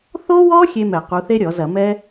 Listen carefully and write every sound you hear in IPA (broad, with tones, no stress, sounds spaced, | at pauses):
θ o˥ w ɔ˥ xʲ e˥ m ɛ˧˩˧ q u˨˦ θ e˥ ɾʲ ɔ˧˩˧ z ɐ˧˩˧ m ɛ˥